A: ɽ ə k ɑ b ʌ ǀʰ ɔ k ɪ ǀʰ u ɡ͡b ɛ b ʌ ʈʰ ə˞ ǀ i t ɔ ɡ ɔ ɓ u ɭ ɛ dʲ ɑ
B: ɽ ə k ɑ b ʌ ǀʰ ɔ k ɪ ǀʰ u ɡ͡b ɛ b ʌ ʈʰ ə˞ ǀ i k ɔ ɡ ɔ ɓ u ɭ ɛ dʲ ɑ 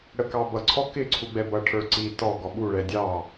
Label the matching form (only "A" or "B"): A